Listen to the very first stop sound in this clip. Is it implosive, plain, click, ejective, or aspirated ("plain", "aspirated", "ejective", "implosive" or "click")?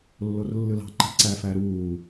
click